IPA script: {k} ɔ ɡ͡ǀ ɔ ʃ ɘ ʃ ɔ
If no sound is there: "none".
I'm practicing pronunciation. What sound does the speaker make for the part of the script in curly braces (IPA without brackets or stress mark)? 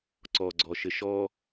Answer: ǀ